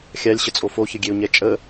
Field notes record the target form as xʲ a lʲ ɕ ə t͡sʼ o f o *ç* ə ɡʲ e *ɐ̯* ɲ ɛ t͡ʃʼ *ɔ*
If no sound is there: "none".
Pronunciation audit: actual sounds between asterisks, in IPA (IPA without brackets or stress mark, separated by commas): ç, o̯, ə